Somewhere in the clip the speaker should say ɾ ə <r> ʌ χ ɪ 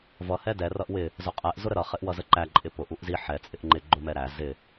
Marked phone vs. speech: incorrect: ɾ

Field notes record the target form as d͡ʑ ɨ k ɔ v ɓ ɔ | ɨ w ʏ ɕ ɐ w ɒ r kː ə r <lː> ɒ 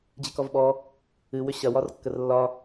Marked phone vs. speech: correct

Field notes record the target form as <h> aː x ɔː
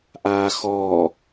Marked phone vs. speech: incorrect: ʔ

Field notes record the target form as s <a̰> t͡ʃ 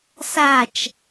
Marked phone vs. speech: incorrect: a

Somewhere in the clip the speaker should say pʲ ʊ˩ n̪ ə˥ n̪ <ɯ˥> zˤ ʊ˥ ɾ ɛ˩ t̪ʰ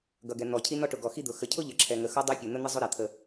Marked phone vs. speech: incorrect: ə˥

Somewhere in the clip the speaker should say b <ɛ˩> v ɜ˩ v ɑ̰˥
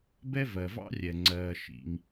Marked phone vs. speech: incorrect: ɛ˥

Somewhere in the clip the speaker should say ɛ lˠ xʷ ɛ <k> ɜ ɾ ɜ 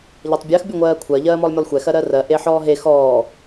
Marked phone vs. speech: incorrect: x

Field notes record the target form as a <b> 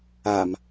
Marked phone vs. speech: incorrect: m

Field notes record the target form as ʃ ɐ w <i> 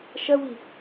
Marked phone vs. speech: correct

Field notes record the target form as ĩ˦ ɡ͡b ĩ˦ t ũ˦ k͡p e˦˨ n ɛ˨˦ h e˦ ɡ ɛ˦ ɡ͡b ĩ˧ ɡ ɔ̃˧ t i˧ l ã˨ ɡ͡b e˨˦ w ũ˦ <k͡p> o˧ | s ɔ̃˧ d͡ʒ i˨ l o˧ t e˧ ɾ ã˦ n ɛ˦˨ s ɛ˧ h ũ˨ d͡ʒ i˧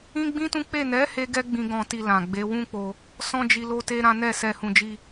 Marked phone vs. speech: correct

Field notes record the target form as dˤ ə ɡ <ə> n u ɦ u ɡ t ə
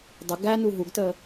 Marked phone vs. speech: incorrect: æ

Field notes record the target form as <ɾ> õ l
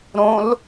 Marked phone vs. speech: correct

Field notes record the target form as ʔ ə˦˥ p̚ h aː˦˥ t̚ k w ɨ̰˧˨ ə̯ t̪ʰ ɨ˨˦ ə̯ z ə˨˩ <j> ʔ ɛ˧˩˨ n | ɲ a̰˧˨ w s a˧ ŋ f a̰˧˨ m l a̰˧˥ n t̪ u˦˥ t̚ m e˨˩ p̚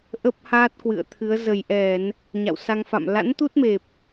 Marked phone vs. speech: correct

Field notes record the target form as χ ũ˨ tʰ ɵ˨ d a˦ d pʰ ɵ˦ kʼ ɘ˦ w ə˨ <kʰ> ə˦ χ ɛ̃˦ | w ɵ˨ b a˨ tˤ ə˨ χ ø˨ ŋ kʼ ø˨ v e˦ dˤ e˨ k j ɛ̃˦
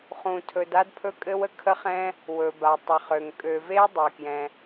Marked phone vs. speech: correct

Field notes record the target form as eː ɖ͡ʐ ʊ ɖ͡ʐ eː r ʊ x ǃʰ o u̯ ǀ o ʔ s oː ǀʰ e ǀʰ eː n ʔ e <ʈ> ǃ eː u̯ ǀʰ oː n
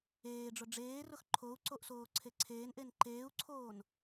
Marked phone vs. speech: incorrect: n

